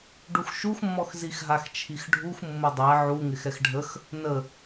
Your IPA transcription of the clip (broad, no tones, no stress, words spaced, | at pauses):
ɖuxʃuxmːɔx zixɦaxt͡ʃʰixɖʱux mːʊdˤɛ ʕuŋɪx ɛxɖʱəx | nə